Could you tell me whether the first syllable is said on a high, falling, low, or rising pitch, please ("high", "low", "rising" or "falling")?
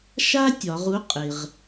high